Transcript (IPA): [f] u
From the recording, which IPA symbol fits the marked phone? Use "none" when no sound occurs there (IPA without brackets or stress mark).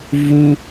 v